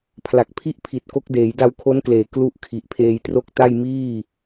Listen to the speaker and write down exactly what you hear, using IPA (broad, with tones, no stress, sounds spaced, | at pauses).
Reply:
pʰ l a˨˩ k̚ pʰ i˥˩ ʔ pʰ i˨˩ t̚ k o˦˥ k̚ d eː˩˦ j d a˧ w kʰ o˦˥ n k l eː˩˦ k l u˥˩ ʔ kʰ i˨˩ ʔ pʰ eː˧ j t r o˥˩ k̚ t a˥˩ j m iː˥˩